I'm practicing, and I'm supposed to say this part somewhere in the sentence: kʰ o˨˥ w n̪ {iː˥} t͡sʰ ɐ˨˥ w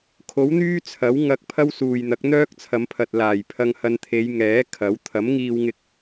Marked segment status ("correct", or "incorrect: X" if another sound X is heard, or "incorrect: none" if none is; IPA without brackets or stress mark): incorrect: yː˥